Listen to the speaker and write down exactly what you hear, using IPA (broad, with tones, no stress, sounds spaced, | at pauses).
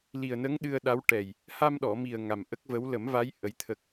l i˨˩ ə̯ n ə˧˥ ŋ ɗ ɨ˧ ə̯ ɗ a˧˥ w ʈ ɛ˨˩ j | h a˧ m ɗ ɔ˨˩˨ m i˨˩ ə̯ ŋ a˨˩ m ʔ ə˦˥ k̚ v ə˧˥ w l ə˨˩˦ m v a˧˥ j ʔ ə˧˥ j t̪ʰ ə˦˥ k̚